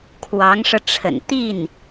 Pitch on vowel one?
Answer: rising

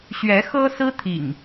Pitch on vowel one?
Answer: rising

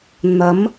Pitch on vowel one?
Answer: rising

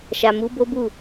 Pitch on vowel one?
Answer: low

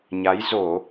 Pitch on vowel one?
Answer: rising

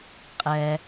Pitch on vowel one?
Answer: low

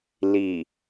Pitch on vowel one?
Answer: low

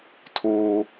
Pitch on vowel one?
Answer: high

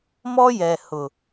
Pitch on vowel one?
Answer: high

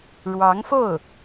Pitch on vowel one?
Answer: rising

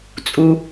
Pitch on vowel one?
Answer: high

